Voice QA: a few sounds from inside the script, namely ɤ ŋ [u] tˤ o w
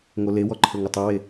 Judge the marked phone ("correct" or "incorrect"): incorrect